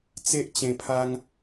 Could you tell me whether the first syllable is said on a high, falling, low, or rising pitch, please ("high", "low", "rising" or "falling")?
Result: high